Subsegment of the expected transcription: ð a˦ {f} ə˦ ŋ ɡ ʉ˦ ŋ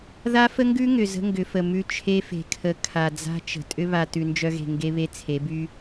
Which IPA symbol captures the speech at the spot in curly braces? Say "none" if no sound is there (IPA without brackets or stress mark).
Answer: f